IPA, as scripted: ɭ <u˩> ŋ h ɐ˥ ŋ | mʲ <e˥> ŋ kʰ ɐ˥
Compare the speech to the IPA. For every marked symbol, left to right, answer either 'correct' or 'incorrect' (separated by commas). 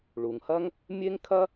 correct, correct